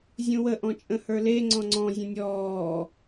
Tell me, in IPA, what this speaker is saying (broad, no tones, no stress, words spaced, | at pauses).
zʲũwə ʔɔ̃t͡ʃʼə̃hə˞le ŋ͡ǀɔ̃ŋ͡ǀɔ̃ zʲə̃nʲɔː